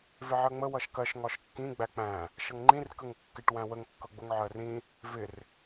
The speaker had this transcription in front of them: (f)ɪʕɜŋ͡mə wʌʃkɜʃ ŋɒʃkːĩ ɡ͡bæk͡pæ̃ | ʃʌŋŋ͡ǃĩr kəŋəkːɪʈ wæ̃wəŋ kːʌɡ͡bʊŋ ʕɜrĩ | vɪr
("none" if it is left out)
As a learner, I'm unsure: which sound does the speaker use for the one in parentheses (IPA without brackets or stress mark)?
v